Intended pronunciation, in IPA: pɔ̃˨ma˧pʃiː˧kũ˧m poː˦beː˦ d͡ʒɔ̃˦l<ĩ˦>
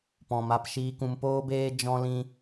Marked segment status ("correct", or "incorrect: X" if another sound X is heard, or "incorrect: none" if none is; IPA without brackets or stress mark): correct